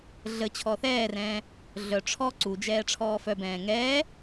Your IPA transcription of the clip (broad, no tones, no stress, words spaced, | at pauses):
ɮə t͡ɕʰɔθɛːrɛ̃ː | ɮœ ʈ͡ʂʰɔ ǀud͡ʒɛː ʈ͡ʂʰɔːfœbɛ̃ː ŋɛː